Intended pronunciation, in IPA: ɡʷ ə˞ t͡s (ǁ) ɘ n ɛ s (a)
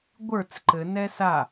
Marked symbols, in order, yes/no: no, yes

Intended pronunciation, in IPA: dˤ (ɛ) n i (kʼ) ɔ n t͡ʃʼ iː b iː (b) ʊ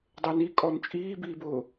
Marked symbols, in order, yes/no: no, yes, yes

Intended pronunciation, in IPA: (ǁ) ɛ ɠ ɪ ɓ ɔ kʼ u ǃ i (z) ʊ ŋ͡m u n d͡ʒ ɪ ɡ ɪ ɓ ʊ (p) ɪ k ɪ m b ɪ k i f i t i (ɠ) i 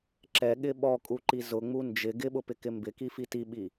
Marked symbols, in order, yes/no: yes, yes, yes, no

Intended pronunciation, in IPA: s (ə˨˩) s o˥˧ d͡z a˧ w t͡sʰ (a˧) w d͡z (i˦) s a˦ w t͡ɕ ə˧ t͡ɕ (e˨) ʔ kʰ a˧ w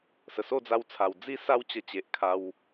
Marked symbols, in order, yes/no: yes, no, yes, yes

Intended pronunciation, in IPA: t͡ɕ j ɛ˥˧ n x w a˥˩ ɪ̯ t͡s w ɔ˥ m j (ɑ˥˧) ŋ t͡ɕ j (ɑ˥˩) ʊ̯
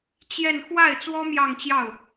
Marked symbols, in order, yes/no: yes, yes

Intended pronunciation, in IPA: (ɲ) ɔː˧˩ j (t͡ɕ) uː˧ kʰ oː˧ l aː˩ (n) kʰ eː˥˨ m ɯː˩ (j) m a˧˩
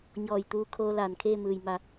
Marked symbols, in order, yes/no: yes, no, yes, yes

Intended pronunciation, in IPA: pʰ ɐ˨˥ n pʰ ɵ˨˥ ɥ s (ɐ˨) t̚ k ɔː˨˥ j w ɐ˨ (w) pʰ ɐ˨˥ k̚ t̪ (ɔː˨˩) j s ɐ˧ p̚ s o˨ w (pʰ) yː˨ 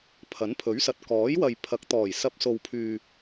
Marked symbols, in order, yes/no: yes, no, yes, yes

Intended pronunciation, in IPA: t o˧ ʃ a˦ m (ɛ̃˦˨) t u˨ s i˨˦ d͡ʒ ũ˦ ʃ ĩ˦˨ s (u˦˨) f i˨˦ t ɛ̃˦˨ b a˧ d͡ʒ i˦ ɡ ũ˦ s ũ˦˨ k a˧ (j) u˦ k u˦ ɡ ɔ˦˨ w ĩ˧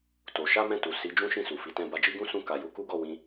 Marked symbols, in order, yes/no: yes, no, yes

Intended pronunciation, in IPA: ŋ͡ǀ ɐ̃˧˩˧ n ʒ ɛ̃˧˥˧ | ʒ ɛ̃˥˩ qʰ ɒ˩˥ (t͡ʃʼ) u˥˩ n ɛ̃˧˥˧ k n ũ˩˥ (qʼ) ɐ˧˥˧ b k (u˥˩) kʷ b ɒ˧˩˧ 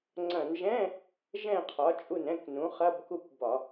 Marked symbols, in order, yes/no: yes, no, yes

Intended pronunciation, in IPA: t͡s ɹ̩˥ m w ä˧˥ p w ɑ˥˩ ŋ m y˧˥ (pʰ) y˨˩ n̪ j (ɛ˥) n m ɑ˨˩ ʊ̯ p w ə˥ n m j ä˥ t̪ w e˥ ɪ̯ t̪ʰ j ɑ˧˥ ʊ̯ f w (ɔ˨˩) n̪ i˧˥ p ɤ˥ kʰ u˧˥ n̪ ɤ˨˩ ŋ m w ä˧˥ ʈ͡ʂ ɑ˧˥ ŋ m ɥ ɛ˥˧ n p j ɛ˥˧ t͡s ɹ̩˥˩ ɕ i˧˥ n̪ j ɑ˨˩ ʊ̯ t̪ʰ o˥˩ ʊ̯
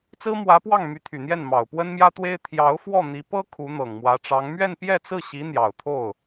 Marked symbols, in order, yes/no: no, no, no

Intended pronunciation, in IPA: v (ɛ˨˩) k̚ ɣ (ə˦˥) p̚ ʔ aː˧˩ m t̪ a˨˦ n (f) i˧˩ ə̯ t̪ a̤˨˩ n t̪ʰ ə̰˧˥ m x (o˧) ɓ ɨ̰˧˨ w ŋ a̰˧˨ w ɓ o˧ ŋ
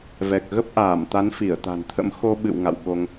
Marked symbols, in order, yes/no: yes, yes, yes, yes

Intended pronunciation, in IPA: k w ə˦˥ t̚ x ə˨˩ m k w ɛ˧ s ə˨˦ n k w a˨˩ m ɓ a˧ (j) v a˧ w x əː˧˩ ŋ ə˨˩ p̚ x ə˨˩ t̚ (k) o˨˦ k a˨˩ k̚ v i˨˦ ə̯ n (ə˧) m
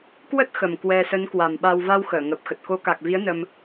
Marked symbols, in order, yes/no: no, yes, yes

